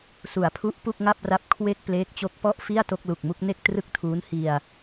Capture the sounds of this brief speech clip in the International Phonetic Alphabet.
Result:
s u˩˦ a̯ pʰ u˦˥ ʔ p u˥˩ k̚ ŋ a˥˩ p̚ r a˦˥ p̚ kʰ w e˥˩ k̚ p l eː˦˥ k̚ t͡ɕ o˦˥ k̚ p ɔ˥˩ ʔ f i˥˩ a̯ t o˥˩ k̚ l u˨˩ k̚ m u˥˩ k̚ n e˥˩ k̚ t r ɯ˥˩ k̚ tʰ uː˦˥ n h i˧ a̯

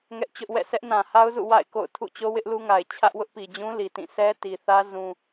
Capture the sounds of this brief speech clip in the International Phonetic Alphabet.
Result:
ŋ ɛ˦ ʔ t͡ɕ ʊ˦ ʔ w ɛ̰˦˨ s ɛ˦ ʔ n ã˨ h a˦ ʊ̯ z ṵ˦˨ w a̰˦˨ ɪ̯ k o̰˦˨ ʊ̯ tʰ ṵ˦˨ t͡ɕ o˦ w ɪ˦ ʔ l u˦ ŋ a˨ ɪ̯ t͡ɕʰ ä˦ ʔ w ʊ˦ ʔ p i˨ d͡ʑ ũ˦ l i˨ t ĩ˦˨ sʰ ɛ˦ t i˨ θ ä˦ z ũ˦

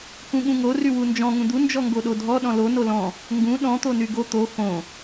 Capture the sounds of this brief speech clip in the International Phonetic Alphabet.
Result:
k ũ ɠ ũ ŋ o r y w u n d͡ʒ ɔ̃ ŋ ũ d̪ u n d͡ʒ ɔ ŋ ɡ o ɗ o dʱ ɔ ɗ ɔ̃ l o n o l ɔ̃ | ŋ ɡ ũ ɗ ɔ̃ t̪ o n y ɡ o t̪ o x õ

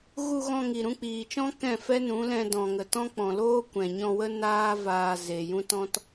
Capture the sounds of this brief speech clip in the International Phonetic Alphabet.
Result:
ɣ u˧ ɣ ɔ̃˧ ŋ i˨ ɾ ũ˧ k͡p iː˨ t͡ʃ ɔ̃˦ k ɛ̃˦˨ f ɛ˦ n ũ˨˦ l ɛ̃˧ d ɔ̃˨ ŋ ə˨ t ɔ̃˦ k͡p ɔ̃˨ l oː˦ kʷ ɛ̃˨ ɲ ɔ̃˧ w ə˦ n aː˦ v aː˧ z e˨ j ũ˦ t ɔ̃˦ t

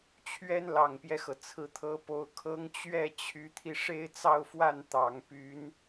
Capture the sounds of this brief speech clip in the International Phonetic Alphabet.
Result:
t͡ɕʰ ɥ ɛ˥ n l ɑ˨˩ ŋ p j ɛ˦ x ɤ˩ t͡sʰ ɹ̩˧˥ t̪ʰ ɤ˧˥ p o˧˥ ʊ̯ kʰ ɤ˧˥ ŋ t͡ɕ ɥ ɛ˥˩ t͡ɕʰ y˧˥ t̪ʰ i˧ ʂ e˥˧ ɪ̯ t͡s ɑ˥˧ ʊ̯ f w a˥˩ n t̪ ɑ˨˩ ŋ p y˧˥ n

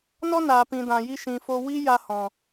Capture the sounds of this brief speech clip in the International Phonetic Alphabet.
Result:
n ɔ˦ n aː˨ p ĩ˨ d ã˨ j i˧ ʃ ĩ˨ f o˧ w i˦ j a˧ h ɔ̃˨

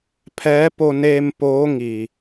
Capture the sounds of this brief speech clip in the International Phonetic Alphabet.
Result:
pʰ ɛː˧˥ p o˧ n eː˧ m p oː˧˥ ŋ i˩

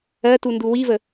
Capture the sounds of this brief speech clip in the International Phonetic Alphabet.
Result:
ɜ t u n d u w i v ə

